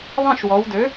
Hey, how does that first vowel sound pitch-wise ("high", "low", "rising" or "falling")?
falling